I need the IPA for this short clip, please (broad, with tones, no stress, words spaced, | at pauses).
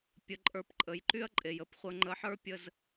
pʲə˧ǃʼə˞˧pǃʼə˩˧j ǃy˥ɐ̯ǃʼe˩jə˩˧p χʷə˧ ŋ͡ǃə˧ħə˞˥pʲə˧z